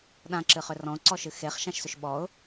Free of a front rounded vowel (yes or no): no